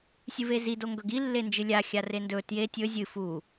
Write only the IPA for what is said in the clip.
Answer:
sʲɨvezido ŋɡɵɡilːend͡ʒɨ lʲa xʲarendɵ tje tʲɵ zʲɨ fu

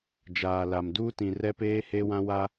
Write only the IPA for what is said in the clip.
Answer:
d͡ʒaː˨la˨m duː˦tĩ˨rɛ˦peː˦ he˦wã˦wa˦

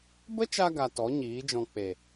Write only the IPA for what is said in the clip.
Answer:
bə˦t͡ʃa˧ ɡa˧tɔ˨˦ɲiː˨˦d͡ʒɔ̃˧ k͡pe˨

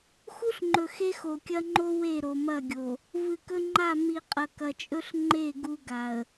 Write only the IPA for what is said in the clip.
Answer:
xu˦ɬŋ͡ǃɵ˨ xe˦xo˨kʲɐ˦ŋ͡ǃo˦ we˦˨ɾo˨mɐ˦˨ɡʲo˨ | vɨ˨kɵ˦ŋ͡ǃa˦˨ mi˨ qʼɐ˨kɐ˨t͡ʃʼɵ˦ɬ ŋ͡ǃe˦˨ ɡu˦ɡa˨ə̯

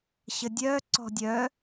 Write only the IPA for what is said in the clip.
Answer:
ɕədʲœ ǀɔ̤dʲœ

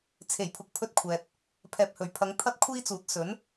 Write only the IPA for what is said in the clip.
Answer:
t͡sʰe˨˩jpʰʊ˨k̚pʰɵ˧t̚ kʷʰɛː˨t̚ | pʰɛː˨p̚hɵ˨˩ɥpʰɐ˨˧ŋ t̪ʰɐ˥t̚kʷʰiː˥t͡suː˨˥t̚ sɵ˨˥n

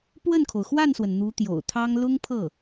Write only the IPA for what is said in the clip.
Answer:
pwə˥˩nkʰo˩ʊ̯xwa˥˩nswə˩n n̪u˧˥t̪jo̰˨˩ʊ̯t̪ʰɑ˥ŋ lʊ˥ŋpʰɤ˥˩

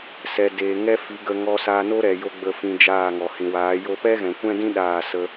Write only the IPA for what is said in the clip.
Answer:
sɛ˨ deː˨ŋɛ˦fi˨˦ ɡə˧ ŋɔ˧sa˧ no˦ɾɛ˨ jo˦ ɡ͡bə˧fĩ˧ d͡ʒaː˦˨ŋɔ˨ hĩ˨waː˨˦jo˦ pɛ˦ɣɛ̃˨kʷɛ̃˦dĩ˦ ɗaː˦˨sə˦

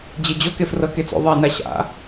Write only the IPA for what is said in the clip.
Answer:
d͡ʑed͡ʑo kefrɤket͡so̰ ðˤe naɕa̰

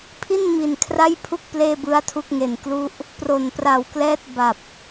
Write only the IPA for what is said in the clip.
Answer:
pʰi˥˩nmi˨˩nkʰra˥˩j pʰu˥˩k̚ pleː˥˩bɯ˦˥a̯tʰu˥˩k̚ ŋe˨˩nklu˥˩ʔ | pro˨˩npra˨˩w klɛː˥˩t̚ ba˨˩p̚

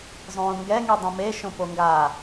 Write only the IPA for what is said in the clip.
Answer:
zˤõːŋɡɛ ŋidˤĩme ʃõpoŋɡaː

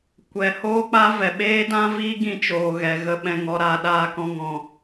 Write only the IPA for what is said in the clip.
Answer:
kʷɛ˨ hoː˦k͡pa˦ vɛ˨ɓeː˦dã˦viː˦ ɡĩ˧t͡ʃoː˨ɣɛ˨ ɣə˦ɓɛ̃˧ŋɔ˨˦ ɾaː˧ɗaː˦kɔ̃˦ŋɔ̃˧

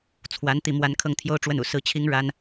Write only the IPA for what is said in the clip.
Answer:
t͡sʰwa˧˥n t̪i˥˩mwa˥n kʰɤ˥˩ŋt̪ʰjo˥ʊ̯ʈ͡ʂwə˥˩nṵ˨˩ sɹ̩˥˩t͡ɕʰi˥ŋ ɻa˥n

